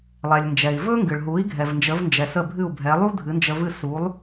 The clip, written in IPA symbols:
lˠɛ˩lʲnd͡ʒɛ˩i̯ vɵ˥ŋɡɨ˩ɭɦu˩˥i̯ ɡʱɛ˩vnd͡ʒə˩˥vnd͡ʒɛ˩ sə˥˩bʱɨ˥˩u̯bʱɛ˩˥ lˠu˥ dʱɨ˩˥nd͡ʒə˧vɨ˥˩ su˩˥lˠ

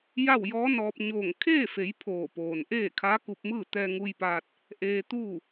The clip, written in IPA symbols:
ja˥˨wjɔː˧˥nɔː˧p̚ ɲoː˧˩ŋ kʰeː˥˨fe˩˧j pʰoː˧˩poː˩nʔeː˥˨ kʰaː˧˥ku˧p̚mɯː˥˨ t̪ɛː˧ŋu˧jpaː˧t̚ | ʔeː˧t̪uː˥˨

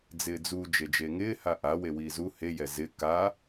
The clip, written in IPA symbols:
d͡zɪːd͡zu d͡ʒed͡ʒeŋɪː haʔa wewiːzu hejɛ zɪ ka

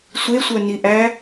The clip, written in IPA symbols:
sʷesʷœniʔæ

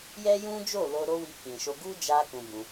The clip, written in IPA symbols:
jɛ˦jũ˦d͡ʒo˦˨ lo˧ ɾo˦wi˧kĩ˨ʃo˧ ɡu˦d͡ʒa˧ kũ˧bũ˧

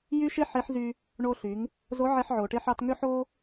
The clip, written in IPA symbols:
jy˥ʃe˥ ħe˧˥ħzy˧ | ɳo˧ɬy˩˧ŋ | zo˧˥ʕe˧ħʕo˩ʈe˧ħ ɑ˧tŋø˥ħo˥

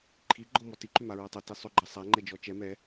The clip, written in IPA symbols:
ǃʰiɡ͡ǃɔmɔ tiǃʏmaɹɔ tˤɐti sˤʏɡ͡ǃɐ sˤaŋ͡ǃɛd͡ʒɔ t͡ʃɛ mɛ

